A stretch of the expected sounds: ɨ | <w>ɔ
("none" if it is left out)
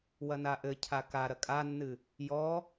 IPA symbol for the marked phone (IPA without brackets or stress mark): j